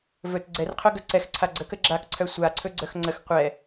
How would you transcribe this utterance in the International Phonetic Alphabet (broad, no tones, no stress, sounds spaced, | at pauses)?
v ɵ t ɡ͡ǀ ɛ r qʰ œ ɡ œ ǀ ɛ x ǀʰ a ɡ͡ǀ ə k ə ɡ͡ǁ a k ǀʰ œ sʷ a ǀʰ ɵ ɡ͡ǀ œ x ŋ͡ǀ ə x qʷ ɛ